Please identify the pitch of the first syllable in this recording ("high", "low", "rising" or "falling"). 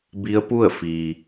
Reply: rising